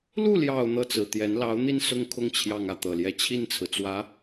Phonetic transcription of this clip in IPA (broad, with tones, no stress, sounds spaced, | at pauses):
l u˥˩ l j ɑ˨˩ ʊ̯ n̪ ɤ˥˩ t͡s ɹ̩˨˩ t̪ j ɛ˧˥ n l ɑ˧˥ ʊ̯ n̪ i˥˧ n s ʊ˥˧ ŋ kʰ ʊ˥˧ ŋ t͡ɕʰ j ɑ˥˧ ŋ ä˥˩ t̪ ɤ˨˩ l j ɛ˥˧ t͡ɕʰ i˥˩ n t͡sʰ ɹ̩˩ t͡s w ä˧˥